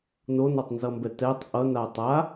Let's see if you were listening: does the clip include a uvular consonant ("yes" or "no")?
no